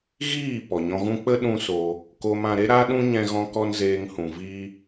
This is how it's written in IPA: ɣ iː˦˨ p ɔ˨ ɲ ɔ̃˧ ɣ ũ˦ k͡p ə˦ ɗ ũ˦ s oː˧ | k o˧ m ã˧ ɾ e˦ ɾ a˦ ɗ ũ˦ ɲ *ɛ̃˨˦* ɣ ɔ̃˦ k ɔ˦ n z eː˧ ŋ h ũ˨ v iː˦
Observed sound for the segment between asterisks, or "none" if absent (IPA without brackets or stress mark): ɛ̃˦